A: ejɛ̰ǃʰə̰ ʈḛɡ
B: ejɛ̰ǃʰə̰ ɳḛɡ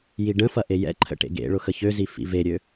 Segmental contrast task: A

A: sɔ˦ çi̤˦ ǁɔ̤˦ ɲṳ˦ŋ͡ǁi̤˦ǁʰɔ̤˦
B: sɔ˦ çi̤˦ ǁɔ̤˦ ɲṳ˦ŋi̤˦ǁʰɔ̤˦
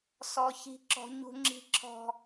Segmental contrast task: A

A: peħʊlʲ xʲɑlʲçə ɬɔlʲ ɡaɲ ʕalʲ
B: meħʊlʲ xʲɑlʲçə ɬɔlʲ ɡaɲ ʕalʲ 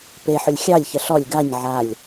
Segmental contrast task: A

